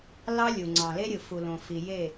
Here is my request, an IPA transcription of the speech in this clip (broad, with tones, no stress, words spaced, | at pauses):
lɑ˦lʲu˨ŋ͡ǀɑ̃˨le˦ ɾʲɯ˨fu˨lõ˨fi˨ je˦˨